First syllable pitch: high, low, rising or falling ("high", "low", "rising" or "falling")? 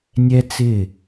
high